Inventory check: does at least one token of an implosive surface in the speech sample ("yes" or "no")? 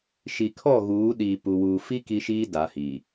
yes